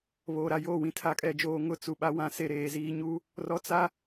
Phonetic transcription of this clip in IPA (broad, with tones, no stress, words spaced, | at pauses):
βoː˨ɾa˨joː˦˨wĩ˦ tʰa˦kʼɛ˦d͡ʒoː˦ ŋʊ˦t͡su˨ɓa˦wã˦ se˨ɾeː˨ziː˦ ɲu˦ | rɔ˦ t͡sa˦